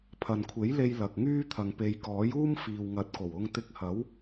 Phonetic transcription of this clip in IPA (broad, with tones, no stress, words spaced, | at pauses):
pʰɐ˨nkʷʰe˨˥jle˧j lɐ˨k̚ŋyː˥ t̪ʰɐ˨ŋpe˨˧jkɔː˨˥juː˥m fiː˨wŋɐ˨˥t̚ko˨˩w ʊ˧ŋt̪ɪ˧k̚ hɐ˨˥w